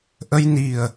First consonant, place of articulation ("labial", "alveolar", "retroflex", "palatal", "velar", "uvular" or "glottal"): glottal